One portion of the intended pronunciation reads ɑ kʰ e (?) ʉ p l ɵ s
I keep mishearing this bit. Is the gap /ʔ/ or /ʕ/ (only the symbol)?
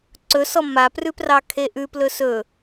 ʔ